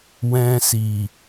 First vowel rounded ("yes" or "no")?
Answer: no